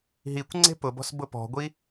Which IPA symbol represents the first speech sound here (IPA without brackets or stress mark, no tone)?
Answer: ɦ